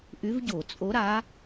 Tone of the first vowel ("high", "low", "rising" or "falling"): rising